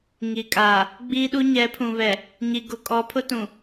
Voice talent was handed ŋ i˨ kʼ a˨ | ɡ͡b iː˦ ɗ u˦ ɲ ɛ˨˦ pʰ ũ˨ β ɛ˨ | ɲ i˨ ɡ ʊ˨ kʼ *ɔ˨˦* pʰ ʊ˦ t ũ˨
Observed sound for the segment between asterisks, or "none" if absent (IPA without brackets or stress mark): ɔ˨˦